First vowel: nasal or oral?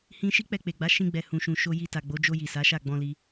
nasal